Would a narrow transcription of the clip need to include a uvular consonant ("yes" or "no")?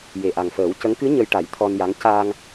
no